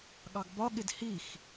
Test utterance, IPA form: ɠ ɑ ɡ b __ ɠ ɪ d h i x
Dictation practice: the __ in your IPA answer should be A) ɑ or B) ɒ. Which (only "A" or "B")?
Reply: B